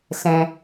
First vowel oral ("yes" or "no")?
no